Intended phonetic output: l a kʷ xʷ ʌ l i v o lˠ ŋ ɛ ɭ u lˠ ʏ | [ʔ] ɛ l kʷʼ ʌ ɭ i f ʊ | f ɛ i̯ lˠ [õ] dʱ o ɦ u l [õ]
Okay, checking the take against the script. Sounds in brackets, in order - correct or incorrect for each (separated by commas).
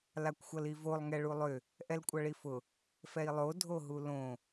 correct, incorrect, correct